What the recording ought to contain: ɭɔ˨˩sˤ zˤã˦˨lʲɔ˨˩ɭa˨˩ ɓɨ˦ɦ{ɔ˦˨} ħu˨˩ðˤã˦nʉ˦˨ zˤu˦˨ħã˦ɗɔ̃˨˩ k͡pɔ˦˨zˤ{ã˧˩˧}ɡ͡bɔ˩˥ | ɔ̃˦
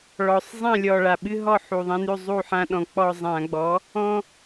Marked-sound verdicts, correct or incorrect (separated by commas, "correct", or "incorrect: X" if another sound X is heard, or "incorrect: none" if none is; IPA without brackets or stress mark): correct, correct